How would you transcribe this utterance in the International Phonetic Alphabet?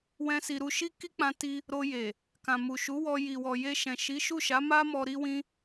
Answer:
w ɛ̃˦ s i˧ ɾ u˧ ʃ i˦ k i˦ k͡p ã˧ t i˧ | ɾ o˧ j e˨ | k ã˨ m u˨ ʃ u˨˦ w ɔ˧ j i˨ w ɔ˨ j e˧ ʃ ɛ̃˨ ʃ i˨˦ ʃ u˦˨ ʃ a˨˦ m a˦ m ɔ˧ ɾ i˦ w ĩ˦

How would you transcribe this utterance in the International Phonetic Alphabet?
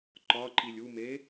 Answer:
ǃ ɒ ǃ i lʲ u m e

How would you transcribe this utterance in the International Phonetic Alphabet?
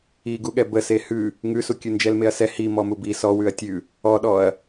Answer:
i ɡ u ɠ ɛ b ə s e h ʉ | ŋ ʉ s u kʲ ʉ n d͡ʒ ɛ l m e ɐ̯ s ɛ h i m ɔ m u b i s ɔ w ʉ ɐ̯ tʲ ʉ | ɔ ɗ ɔ ɐ̯

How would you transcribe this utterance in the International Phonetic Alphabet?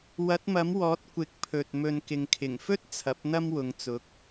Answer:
w ɐ˨˥ t̚ m ɐ˨˥ m w ɔː˨˥ t̚ kʷ ɪ˨˥ k̚ pʰ ɵ˨ t̚ m ɵ˨ n k ɪ˨ ŋ kʰ ɪ˨˩ ŋ f ɵ˥ t̚ t͡sʰ ɐ˨˥ p̚ n̪ ɐ˥ m w ʊ˨˧ ŋ t͡s ʊ˨˥ k̚

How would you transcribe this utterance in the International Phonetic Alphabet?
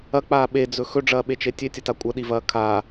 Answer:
ɐ k͡p aː ɓ e d͡z ɵ x ɵ ɖ͡ʐ ɐː ɓ e t͡ʃ e tʲ e tʲ ɐ t a kʷʼ ɐ ɗ i v ɐː kʰ a

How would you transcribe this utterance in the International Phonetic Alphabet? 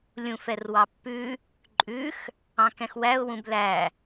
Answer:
lʲ ũ f ɛ r w ɑ pː ʉ | ǃʼ ʉ x | ɑ̃ k ɛ̃ x w æ ʊ̯ w ũ b l æ

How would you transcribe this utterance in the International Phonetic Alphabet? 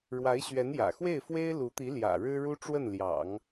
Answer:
ɻ w a˧˥ ɪ̯ ɕ ɥ ɛ˧˥ n j ä̰˨˩ x w e˥˩ ɪ̯ f w e˥ ɪ̯ l u˧˥ t̪ i˧˥ l j ä̰˨˩ ɻ ɻ̩˥ ɻ u˥ ʈ͡ʂ w ə˥˩ n l j ɑ̰˨˩˦ ŋ

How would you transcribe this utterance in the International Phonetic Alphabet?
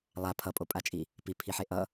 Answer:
lˠ a pʰ ʌ pʼ o pʼ a t͡ʃʼ i | p i pʰ i ħ e ʔ ʌ

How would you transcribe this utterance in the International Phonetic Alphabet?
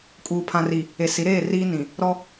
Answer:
kʼ uː˨ pʰ ã˨ r i˨ | e˨ s i˨˦ ɾ eː˦˨ r iː˦ n ĩ˨ | ɾ ɔ˦

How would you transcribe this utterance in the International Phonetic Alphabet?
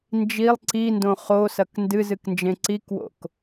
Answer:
n d͡ʒ i lˠ ǀ i n d õ χ o s ɐ k n d ɨ z ɨ k n d͡ʒ ẽ ǀ i k w o̰ k

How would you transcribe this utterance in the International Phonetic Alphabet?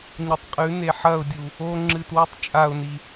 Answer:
ɲ ɐ tˤ qʼ ʉ n e ħ ɐ ʊ̯ dʲ u | o ŋ͡ǁ ɨ t w ʉ tˤ t͡ʃʼ a ʊ̯ n i

